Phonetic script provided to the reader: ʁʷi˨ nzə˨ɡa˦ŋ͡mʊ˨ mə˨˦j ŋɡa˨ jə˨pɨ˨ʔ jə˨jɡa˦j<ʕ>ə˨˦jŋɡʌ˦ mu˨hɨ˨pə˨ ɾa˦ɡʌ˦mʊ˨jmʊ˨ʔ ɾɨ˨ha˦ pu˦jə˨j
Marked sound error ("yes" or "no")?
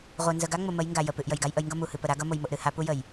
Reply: yes